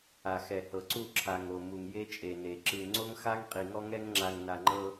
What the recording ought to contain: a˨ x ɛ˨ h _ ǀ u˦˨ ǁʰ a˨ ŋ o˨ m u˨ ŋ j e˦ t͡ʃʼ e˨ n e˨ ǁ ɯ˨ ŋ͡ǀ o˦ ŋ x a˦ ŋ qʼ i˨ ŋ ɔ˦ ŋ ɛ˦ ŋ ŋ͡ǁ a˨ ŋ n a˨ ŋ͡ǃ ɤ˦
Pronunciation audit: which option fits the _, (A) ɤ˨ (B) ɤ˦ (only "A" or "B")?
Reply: A